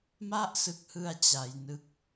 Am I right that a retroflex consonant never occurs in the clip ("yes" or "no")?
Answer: yes